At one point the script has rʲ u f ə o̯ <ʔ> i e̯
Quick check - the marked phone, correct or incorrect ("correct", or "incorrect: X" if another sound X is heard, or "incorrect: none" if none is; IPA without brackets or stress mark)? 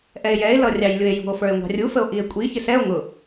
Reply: correct